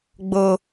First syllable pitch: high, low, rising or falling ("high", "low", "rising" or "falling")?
low